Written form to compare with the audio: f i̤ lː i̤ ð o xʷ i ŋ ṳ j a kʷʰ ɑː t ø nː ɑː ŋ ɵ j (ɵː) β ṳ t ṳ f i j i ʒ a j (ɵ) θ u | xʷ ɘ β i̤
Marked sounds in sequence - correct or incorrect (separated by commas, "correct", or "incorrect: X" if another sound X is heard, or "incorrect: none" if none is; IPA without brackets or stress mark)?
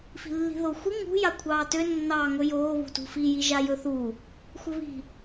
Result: incorrect: oː, correct